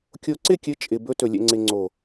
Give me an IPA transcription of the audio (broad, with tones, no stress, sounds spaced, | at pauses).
kʲ o˧ ǀ ɪ˦˨ kʲ ɘ˨˦ t͡ʃʼ ɪ˨ b ɵ˧ t ɵ˨ lʲ ɛ̰˨ ŋ͡ǀ ɪ˨ ŋ͡ǀ o˨